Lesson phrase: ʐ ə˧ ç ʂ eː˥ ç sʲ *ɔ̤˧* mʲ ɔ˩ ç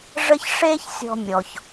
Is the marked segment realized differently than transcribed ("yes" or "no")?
no